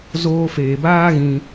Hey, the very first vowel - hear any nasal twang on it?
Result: no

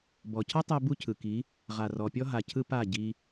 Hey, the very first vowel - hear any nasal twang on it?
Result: no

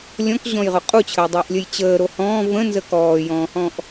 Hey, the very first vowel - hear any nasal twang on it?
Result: yes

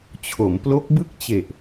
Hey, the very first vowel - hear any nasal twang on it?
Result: no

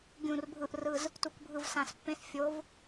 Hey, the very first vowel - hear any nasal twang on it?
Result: yes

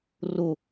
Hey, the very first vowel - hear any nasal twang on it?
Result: no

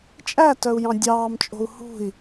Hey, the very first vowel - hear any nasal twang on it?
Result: no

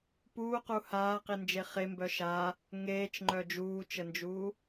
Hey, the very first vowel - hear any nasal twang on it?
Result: no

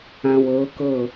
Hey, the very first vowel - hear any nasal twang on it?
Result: yes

